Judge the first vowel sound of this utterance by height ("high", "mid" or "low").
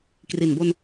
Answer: high